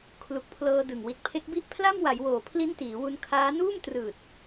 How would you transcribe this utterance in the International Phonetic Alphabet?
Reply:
kʰ l u˨˩ k̚ pʰ l ɤː˧ d ɯ˨˩ ŋ w i˨˩ t̚ pʰ e˦˥ k̚ b i˥˩ ʔ pʰ l a˥˩ m w a˩˦ j w oː˨˩ pʰ l i˦˥ n t iː˩˦ w u˧ n kʰ aː˦˥ n uː˥˩ m t r ɯː˨˩ t̚

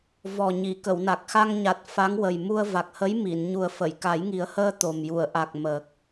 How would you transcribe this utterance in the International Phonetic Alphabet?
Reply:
v ɔ˨˩ ɲ i˨˩˨ k ə˨˩˨ w n a˨˩ k̚ x a˧ ŋ ɲ a˨˩ t̚ f a˧˥ ŋ w ə˨˩ j m u˧ ə̯ v a˨˩ k̚ h ə˧˥ j m i˨˩˨ n ɲ u˨˩ ə̯ f ə˨˩˨ j k a˨˩˦ j ŋ i˨˩˦ ə̯ h əː˧ t̪ o˨˩ m j u˨˩˨ ə̯ ʔ a˨˩ k̚ m əː˨˩ k̚

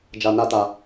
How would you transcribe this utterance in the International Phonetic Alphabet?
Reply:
d͡ʒ a˧ n a˦ t a˧

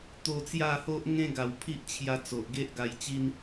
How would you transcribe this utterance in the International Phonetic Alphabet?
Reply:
t̪ o˧ t͡s j a˥˧ h o˦ ʔ ŋ ẽ˦ ɡ a˨˩ w pʰ i˦ ʔ t͡ɕʰ j a˧ t͡s o˨ ʔ ɡ e˦ ʔ ɡ a˧ j t͡ɕ i˦ n

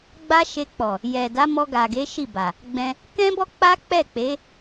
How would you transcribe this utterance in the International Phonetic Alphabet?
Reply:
ɡ͡b a˦ ʃ e˧ k͡p ɔ˨ | j ɛ˨ d a˨˦ m ɔ˧ ɡ a˨ ɡ e˨˦ ʃ i˦˨ b a˨ | ɡ͡b ɛ̃˧ | k ɛ̃˦ b ɔ˦ k͡p a˦ k͡p ɛ˦˨ k͡p e˨˦

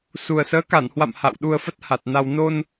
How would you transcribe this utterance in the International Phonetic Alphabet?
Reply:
s u˨˩ ə̯ s əː˨˦ k a˧˩ n h w a̰˧˨ m h a̰˧˨ w ɗ u˧ ə̯ f ə˦˥ t̚ h a˨˩ t̚ n a˧ w n o˧ n

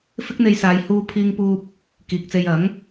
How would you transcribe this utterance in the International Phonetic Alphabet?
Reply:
f ɪ˥ k̚ n̪ e˧ j s aː˨ j h uː˧ pʰ iː˧ ŋ p uː˧ p̚ | k iː˨ k̚ t͡s e˧ j ɐ˨˥ ŋ

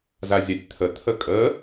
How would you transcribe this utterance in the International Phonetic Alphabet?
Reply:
z a zʲ a tʲ t̪ʰ ə t̪ʰ ə kʼ ə

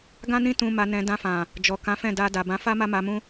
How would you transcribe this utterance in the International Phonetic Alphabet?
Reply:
ɡ ã˦ n ĩ˦ t ũ˧ m a˧ n ɛ̃˧ d ã˧ f ã˨ | d͡ʒ ɔ˨ k ã˨˦ f ɛ̃˦˨ d a˧ d a˨ b ã˨˦ f a˦ m a˦ m a˧ m ũ˦

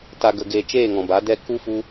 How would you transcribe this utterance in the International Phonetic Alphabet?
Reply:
t a˨ ɡ ə˨ ɡ eː˨ t͡ʃ eː˦˨ ŋ ɔ̃˨ b a˨˦ d ɛ˦ k u˦ f u˧

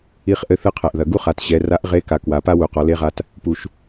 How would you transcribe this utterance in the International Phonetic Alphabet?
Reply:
i˧ χ ʔ ɘ˧˥ θ ɨ˧ qʰ ɛ˩ ʔ ð ɐ˩ ɡ u˥ χ a˩˧ t ɕ ɛ˩˧ r a˧˥ ʔ ʁ e˧˥ k a˩˧ k w a˩˧ p a˥ w u˩˧ q ɔ˩˧ l e˥ ʁ a˧ t | p u˩ ʃ

